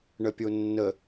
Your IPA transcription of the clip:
ɳ ə pʲ o nː ə

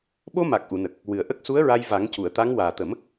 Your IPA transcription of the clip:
ɓ o˧ m a˨˩ k̚ ʔ u˨˩˨ n ə˨˩ k̚ | w ɨ˨˩ ə̯ ʔ ə˦˥ k̚ s u˧˥ ə̯ ɹ a˧ j v a˨˩˦ ŋ c u˨˩˨ ə̯ t̪ a˧˥ ŋ w aː˨˩ t̪ ə˨˩˦ m

